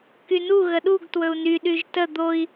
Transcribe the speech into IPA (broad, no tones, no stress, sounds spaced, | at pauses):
k y n u ɣ ə ɗ u ɡ t w ɵ u̯ n y ɗ y ʒ t ə d̪ o i̯